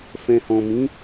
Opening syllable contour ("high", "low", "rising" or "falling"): low